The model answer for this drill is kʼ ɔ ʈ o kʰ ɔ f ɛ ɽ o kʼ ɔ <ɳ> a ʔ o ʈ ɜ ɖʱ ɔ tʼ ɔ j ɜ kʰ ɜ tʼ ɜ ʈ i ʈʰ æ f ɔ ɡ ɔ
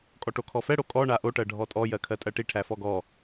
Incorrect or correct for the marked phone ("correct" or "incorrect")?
correct